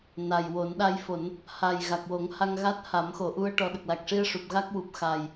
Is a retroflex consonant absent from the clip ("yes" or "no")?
no